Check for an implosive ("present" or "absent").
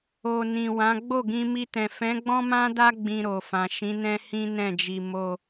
absent